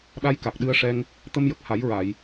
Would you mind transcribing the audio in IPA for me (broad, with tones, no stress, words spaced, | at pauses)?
ɗa˧jka˨˩k̚ ɗɨ˧ə̯ʂɛ˧ŋ | t̪ə˧mjə˨˩k̚ha˨˩˦jɹa˨˩˨j